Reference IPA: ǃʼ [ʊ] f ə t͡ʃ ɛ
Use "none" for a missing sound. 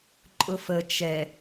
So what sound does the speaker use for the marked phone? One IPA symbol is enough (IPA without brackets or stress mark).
ʊ